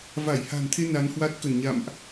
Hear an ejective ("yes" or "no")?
no